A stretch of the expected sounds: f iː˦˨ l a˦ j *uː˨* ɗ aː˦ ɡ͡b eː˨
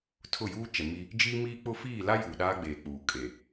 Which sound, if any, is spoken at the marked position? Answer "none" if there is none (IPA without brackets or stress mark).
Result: uː˨